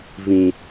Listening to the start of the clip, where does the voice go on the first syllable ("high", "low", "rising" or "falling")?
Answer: low